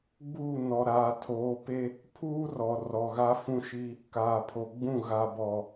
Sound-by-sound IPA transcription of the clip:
ɡ͡b uː˦˨ n ɔ˨ ɾ aː˨ tʰ oː˨˦ p e˦ | pʰ uː˦ r ɔ˨ r ɔ˨ ɣ a˦ f ũ˦ ʃ i˦ | k aː˨ pʰ o˨ ɡ͡b ũ˦˨ ɣ a˨ b ɔ˨

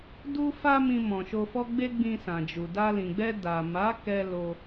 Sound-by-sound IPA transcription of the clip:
d u˦ f a˦ m ĩ˧ m ɔ̃˨ ʃ o˧ f ɔ˦ ɡ͡b e˦ ɡ͡b ĩ˧ s ã˨ d͡ʒ u˨ d a˧ l ĩ˨ ɡ͡b ɛ˧ d a˨ m a˨˦ k ɛ˧ l o˧

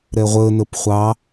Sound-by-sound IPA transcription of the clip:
ɾ ɛ ʁʷ ə n ə p χʷ ɑ

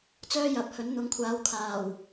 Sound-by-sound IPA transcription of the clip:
t͡s œː˥ j ɐ˨˥ p̚ h ɵ˨˥ n n̪ ʊ˨˧ ŋ kʷʰ aː˨˧ w kʰ aː˨˩ w

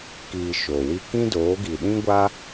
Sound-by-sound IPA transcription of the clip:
k iː˧ ʃ oː˨ w i˧ k ĩ˦ d oː˨˦ ɡ i˨ ɗ ĩ˦ ɡʷ a˦

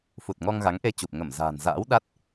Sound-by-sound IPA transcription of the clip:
f u˨˩ t̚ ŋ ɔ˧ ŋ ɣ a˨˦ ŋ ʔ e˧ t͡ɕ u˨˩ p̚ ŋ ə˧˩ m z a̤ː˨˩ n z a̰ː˧˥ w ɗ a˦˥ t̚

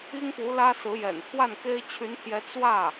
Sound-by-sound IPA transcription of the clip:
i˥ ŋ p u˧˥ l ä˥ s ɹ̩˧˥ j ɛ̰˨˩ n pʰ w a˥˩ n k e˥ ɪ̯ t͡ɕʰ y˧˥ n t̪ʰ j ɛ˧˥ t͡s w ä˥˩

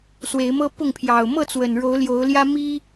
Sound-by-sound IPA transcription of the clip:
s w e˨˦ ɪ̯ m ɤ˦ p ʊ˥˨ ŋ pʰ j ɑ˨˩ ʊ̯ m ɤ˥˨ t͡s w ə˨˩ n ɻ o˨˦ ʊ̯ l j o˨˦ ʊ̯ l j ä˦ m i˦

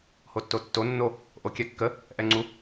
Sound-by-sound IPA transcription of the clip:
h o tː o tː o nː o | ʔ o kʲ ɛ kː ə | ʔ ɛ ŋ͡ǀ u

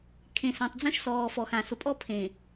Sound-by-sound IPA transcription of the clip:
kʰ ẽ˨ s ã˨ tˤ d͡z õ˦ ʃ s ɔː˨ f ɔ˨ x ã˨ s ʊ˨ pʼ ɔ˦ pʰ ẽ˨

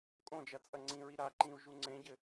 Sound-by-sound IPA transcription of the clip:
kʼ õ d͡ʒ ɐ t͡sʼ ɐ ŋ͡ǀ ĩ ɹ i ɾ a ǃ ĩ u̯ ʒ u ŋ͡ǀ ẽ ɟ ɘ

